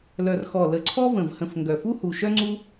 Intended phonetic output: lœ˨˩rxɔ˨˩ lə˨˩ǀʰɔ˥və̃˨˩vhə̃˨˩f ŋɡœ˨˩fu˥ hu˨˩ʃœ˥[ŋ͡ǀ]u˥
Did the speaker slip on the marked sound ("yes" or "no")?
no